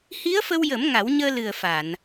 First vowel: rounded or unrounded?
unrounded